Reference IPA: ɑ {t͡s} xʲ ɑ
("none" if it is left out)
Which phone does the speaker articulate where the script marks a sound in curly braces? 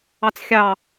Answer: t͡s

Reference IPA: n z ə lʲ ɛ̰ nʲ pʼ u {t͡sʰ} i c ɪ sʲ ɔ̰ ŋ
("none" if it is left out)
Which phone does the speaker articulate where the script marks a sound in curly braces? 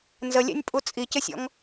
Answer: t͡sʼ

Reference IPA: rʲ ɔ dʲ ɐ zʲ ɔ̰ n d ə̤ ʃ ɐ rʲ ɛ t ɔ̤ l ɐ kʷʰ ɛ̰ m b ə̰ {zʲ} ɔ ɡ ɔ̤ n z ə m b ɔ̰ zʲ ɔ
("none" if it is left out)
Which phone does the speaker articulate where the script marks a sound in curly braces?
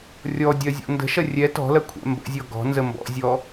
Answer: zʲ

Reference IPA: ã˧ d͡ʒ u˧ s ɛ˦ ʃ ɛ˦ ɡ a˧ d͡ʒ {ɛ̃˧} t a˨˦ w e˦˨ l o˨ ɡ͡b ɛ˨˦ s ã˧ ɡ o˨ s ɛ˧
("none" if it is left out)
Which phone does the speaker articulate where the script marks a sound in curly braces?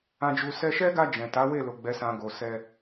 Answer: ɛ̃˨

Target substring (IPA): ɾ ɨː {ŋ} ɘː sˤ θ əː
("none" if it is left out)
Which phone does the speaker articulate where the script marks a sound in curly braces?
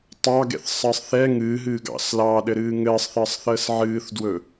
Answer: ŋ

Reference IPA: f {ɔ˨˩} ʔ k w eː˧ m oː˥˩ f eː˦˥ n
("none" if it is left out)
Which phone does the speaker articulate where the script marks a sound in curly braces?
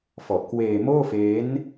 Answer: ɔ˨˩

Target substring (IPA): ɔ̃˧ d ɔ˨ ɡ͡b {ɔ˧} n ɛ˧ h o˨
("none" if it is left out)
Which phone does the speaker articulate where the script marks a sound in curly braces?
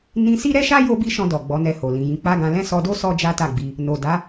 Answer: ɔ˨˦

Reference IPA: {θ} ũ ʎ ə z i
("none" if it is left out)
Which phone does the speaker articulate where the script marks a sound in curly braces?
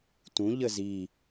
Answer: t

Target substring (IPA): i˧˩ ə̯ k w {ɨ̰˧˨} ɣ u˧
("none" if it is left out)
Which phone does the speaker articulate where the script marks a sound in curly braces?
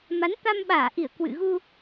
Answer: ɨ̰˧˨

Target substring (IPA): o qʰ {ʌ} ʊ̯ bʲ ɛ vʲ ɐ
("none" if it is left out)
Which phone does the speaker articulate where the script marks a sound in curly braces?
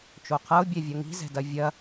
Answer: ʌ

